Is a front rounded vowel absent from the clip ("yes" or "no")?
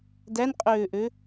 no